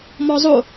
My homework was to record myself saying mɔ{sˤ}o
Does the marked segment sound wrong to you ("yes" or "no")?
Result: yes